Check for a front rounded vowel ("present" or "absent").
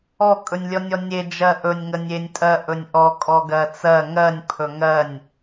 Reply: absent